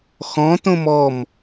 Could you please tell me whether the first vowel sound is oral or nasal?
nasal